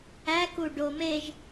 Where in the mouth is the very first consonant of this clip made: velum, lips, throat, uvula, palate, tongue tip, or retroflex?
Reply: velum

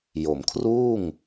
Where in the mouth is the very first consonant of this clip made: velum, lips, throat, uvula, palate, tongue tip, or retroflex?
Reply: palate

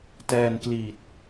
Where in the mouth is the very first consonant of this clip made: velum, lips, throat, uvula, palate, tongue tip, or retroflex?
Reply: tongue tip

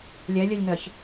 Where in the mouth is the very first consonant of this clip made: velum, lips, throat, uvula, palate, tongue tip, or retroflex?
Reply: tongue tip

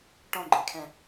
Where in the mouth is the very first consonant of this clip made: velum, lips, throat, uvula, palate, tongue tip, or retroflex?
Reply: retroflex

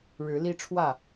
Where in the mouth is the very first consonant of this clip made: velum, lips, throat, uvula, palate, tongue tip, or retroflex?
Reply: retroflex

